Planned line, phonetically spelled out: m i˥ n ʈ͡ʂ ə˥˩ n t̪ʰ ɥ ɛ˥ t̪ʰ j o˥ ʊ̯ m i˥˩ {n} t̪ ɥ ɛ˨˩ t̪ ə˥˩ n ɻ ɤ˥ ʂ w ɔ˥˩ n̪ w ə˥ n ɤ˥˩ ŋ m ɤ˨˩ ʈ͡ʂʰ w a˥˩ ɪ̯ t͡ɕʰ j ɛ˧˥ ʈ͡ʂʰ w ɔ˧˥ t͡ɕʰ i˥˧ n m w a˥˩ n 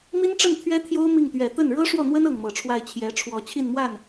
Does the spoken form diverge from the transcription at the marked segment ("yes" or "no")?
yes